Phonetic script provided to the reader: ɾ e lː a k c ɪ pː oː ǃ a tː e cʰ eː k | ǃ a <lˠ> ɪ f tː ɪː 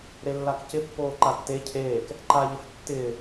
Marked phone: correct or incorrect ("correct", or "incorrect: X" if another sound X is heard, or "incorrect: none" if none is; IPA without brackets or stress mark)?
incorrect: ʎ